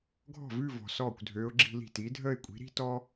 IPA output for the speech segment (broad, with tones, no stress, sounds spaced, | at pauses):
ɡʱ ɔ̤˥˩ v ʉ˥˧ v ɔ̤˨ s ɔː˥˩ kʷ dʱ øː˧˥ ʊ̯ ɡ͡ǁ i̤˥˧ l i̤˥˩ t iː˩˥ dʱ əː˥˧ ɪ̯ kʷʼ i̤˩˥ ɾ i̤˥ t ɔ˥